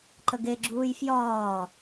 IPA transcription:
ǃ ə ɡ e ɡ͡ǁ uː j f j ɒː

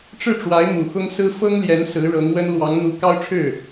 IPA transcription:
ʈ͡ʂ ɻ̩˥˩ ʈ͡ʂ w a˧˥ ɪ̯ m u˨˩ x ʊ˥ ŋ s ɹ̩˥ f ɤ˥ ŋ l j ɛ˧˥ n s ɹ̩˧˥ ɻ ɤ˧˥ ŋ w ə˥ n l w ɑ˧˥ ŋ n̪ u˧˥ k ɑ˥ ʊ̯ ʈ͡ʂʰ ɻ̩˥˩

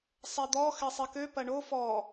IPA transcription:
sˤ ɛ d̪ ɔ x ɛ sˤ i k ø p ɐ ɳ o f ɔ

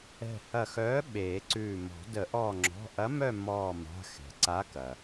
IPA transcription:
ɛ̤˧˩ h ɐ˧˩ x œː˨˥ ɓ eː˨˩˦ ǀ ʉː˧˩ m ɔ̤˨˩˦ d ə˨˩˦ ʔ ɔː˧˩ ŋ͡ǁ ɔ̤˩˧˩ ʔ ɐ˨˥ m œ˥˨ mː ɔː˧˩ m a̤˩˧˩ x ɛ̤˩ ǀ a˨˥ k ɐ˩

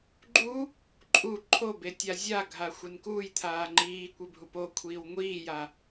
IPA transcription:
ɡ͡ǃ u | ǃʼ u ǃʰ o b e tʲ a zʲ a ɡʱ a xʷ e n k uː j t̪ʰ aː ŋ͡ǃ iː kʷ e bʱ u p o kʷʰ iː w ŋʷ iː j a

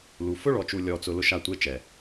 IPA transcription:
l u˨ f ʊ˦ ɭ ɔ˨ t͡ʃ u˨ lʲ ɔ˨ t͡s ʊ˨ l ʊ˦ ʃ a˦˨ tʷ e˦ t͡ʃ ɛ˨

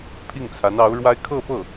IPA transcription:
pʰ i˥˩ ŋ t͡sʰ a˧˥ n ɑ˧˥ ʊ̯ ɻ w a˥ ɪ̯ kʰ ɤ˥˧ p ɤ˥˩

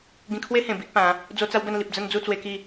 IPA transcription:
ɡ ĩ˧ kʰ w e˦ h ẽ˨˩ b i˦ ʔ p ã˨˦ | d͡z o˦ t͡s a˦ w b ə˥˧ n l i˨ p̚ d͡z ə˥˧ n d͡z u˥˧ t͡s w e˧ k i˥˧

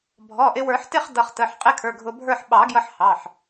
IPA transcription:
bʱ ɔ˩˧˩ ʔ ɪ˧ w ə˞˨˩˦ ħ t ɪ˥˧ χ d ʌ˧ χ t ə˩˧˩ ħ qʼ ɪ˥˧ kʰ ə˞˩˧˩ ɡʱ ʊ˧ bʱ ə˞˥˧ ħ ɓ ɑ˨˩˦ ɡ j ʌ˧ ħ h ɑ˩˧˩ ħ

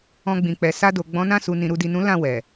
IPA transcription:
ɔ̃˧ ɡ͡b ĩ˨ k͡p ɛ˨ s a˧ d o˨ ɡ͡b ɔ̃˨˦ n ã˦˨ s u˨ n ĩ˨ ɾ u˨ d i˨ n ũ˨˦ l ã˦˨ w ɛ˨

